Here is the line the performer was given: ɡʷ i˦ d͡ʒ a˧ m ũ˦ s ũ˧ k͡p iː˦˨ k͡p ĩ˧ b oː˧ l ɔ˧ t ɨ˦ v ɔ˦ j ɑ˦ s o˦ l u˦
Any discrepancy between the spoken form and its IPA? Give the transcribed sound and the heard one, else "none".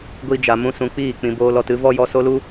ɑ˦ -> ɔ˦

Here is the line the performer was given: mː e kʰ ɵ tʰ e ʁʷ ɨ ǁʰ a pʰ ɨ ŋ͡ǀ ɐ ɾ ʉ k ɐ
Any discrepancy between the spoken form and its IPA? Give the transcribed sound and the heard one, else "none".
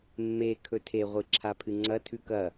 ɾ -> tʰ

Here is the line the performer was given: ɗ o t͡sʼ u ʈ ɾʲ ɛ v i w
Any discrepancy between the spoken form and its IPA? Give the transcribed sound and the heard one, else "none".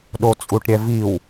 none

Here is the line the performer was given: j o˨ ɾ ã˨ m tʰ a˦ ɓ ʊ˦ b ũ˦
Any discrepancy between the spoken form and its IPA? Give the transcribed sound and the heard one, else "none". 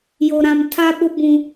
none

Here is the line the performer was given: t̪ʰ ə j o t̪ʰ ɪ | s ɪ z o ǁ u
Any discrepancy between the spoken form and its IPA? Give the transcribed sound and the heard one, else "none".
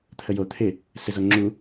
ǁ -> ŋ͡ǁ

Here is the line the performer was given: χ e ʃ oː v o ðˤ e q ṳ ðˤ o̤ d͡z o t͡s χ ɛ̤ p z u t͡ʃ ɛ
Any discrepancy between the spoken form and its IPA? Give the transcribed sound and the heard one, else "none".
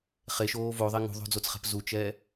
q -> ŋ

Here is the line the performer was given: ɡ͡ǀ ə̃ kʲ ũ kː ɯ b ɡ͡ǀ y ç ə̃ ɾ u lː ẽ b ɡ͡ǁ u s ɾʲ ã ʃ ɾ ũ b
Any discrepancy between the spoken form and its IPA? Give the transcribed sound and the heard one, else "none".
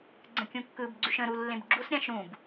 ç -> ʃ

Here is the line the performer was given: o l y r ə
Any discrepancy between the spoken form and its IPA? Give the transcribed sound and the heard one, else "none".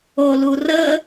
y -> u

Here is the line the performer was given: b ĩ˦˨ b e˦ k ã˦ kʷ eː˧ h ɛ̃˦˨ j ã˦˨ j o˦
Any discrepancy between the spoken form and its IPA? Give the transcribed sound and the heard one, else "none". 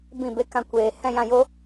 none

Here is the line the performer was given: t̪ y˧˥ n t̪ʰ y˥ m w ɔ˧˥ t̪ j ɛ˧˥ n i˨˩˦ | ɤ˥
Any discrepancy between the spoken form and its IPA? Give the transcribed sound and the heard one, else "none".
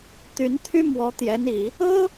none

